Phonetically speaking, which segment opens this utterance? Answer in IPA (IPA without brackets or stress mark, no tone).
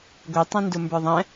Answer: ɡʷ